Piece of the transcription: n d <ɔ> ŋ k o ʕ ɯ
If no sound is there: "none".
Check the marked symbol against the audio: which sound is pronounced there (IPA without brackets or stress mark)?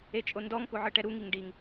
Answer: ɔ